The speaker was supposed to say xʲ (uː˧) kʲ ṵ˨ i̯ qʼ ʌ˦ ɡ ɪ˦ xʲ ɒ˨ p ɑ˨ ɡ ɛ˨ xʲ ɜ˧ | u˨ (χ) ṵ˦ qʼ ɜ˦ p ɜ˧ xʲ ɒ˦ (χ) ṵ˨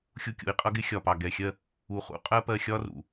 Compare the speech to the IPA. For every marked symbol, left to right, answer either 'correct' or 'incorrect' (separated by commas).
incorrect, correct, incorrect